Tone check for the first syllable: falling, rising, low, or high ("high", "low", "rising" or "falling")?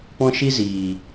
high